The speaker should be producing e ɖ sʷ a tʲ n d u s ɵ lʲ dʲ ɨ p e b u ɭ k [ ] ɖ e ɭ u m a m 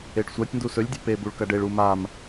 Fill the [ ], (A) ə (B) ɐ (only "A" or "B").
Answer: B